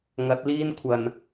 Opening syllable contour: rising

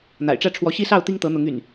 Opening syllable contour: low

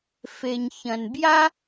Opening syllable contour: low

